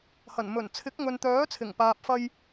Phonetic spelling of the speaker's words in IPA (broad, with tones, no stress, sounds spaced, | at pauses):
h ɐ˨˩ n m ɵ˨˩ n t͡sʰ ɪ˨˥ k̚ ŋ ɵ˨ n t̪ œː˨˥ t͡sʰ ɪ˨˩ ŋ p aː˨ p̚ f ɐ˧ j